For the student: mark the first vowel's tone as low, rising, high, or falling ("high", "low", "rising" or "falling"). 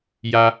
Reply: low